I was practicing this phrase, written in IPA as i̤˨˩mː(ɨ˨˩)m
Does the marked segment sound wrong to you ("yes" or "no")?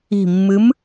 yes